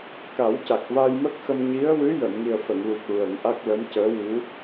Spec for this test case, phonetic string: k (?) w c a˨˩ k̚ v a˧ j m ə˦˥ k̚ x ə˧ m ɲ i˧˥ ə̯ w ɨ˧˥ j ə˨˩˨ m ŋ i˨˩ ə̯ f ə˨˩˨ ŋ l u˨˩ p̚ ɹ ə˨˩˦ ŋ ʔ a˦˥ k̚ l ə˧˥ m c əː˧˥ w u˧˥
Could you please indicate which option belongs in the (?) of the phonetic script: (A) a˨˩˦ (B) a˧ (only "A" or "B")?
A